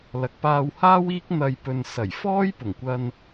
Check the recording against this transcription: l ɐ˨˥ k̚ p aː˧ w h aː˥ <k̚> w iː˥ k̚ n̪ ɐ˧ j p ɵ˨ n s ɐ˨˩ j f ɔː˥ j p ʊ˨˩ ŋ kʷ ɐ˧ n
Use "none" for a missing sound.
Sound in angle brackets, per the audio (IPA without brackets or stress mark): none